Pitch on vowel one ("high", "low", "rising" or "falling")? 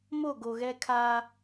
falling